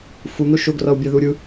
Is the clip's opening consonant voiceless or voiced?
voiceless